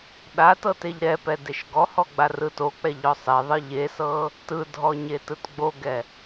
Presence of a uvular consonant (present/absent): absent